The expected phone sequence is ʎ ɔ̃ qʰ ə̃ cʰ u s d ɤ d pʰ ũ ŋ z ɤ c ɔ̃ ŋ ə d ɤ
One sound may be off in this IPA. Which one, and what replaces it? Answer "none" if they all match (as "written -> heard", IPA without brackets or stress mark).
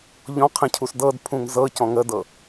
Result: none